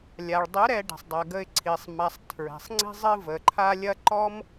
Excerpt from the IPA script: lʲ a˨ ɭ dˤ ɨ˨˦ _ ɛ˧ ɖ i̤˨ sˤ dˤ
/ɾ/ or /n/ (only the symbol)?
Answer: ɾ